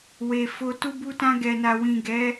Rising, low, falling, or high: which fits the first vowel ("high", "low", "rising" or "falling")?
low